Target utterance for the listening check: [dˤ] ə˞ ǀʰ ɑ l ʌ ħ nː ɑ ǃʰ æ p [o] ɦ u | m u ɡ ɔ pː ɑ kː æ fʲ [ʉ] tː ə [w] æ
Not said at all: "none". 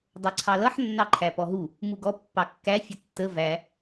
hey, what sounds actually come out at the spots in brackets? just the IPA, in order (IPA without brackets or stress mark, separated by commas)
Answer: dˤ, ɔ, ə, v